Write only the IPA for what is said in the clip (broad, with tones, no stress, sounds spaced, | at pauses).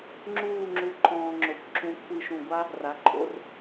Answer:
ŋ͡ǁ uː˥˧ ŋ͡ǁ u˧ ǃʰ ɔ̃ː˧ ŋ͡ǁ o˩˧ kʷ ǁ ũ˧ kʷʰ i˧˩ ʃ ũ˧˩ ɡʷ a˥ | r a˩˧ ǃʰ o̰˧ r